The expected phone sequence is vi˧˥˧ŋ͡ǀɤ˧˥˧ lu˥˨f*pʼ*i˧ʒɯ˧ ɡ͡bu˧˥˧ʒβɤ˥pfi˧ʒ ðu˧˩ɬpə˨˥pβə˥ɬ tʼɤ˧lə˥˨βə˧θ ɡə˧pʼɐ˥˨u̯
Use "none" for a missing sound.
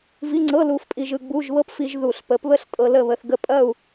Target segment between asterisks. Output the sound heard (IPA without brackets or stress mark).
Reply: pʼ